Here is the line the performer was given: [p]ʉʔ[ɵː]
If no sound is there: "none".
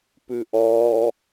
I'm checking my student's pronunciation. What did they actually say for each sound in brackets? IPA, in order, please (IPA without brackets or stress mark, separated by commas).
p, ɔː